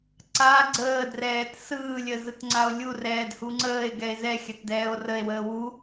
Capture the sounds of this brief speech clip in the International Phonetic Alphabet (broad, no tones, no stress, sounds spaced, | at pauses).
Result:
ǀ a ɡ͡ǀ əː d r ɛː t s ɯː lʲ ə z ɯ t ŋ͡ǀ a o̯ lʲ u r ɛː d h u ŋ͡ǀ əː e̯ ɡ ɛ e̯ z ɛ xʲ a t d ɛː o̯ r ə e̯ w əː w u